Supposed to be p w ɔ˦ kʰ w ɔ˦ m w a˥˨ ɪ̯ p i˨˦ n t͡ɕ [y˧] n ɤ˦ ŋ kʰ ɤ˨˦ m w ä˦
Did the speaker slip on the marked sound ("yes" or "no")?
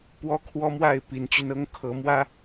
no